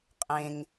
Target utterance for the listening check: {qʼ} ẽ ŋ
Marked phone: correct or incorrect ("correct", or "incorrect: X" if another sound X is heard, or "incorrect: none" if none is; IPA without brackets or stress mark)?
correct